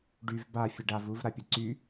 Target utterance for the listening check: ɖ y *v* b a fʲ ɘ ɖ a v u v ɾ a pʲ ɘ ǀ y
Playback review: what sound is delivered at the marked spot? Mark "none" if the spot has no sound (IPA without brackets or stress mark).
v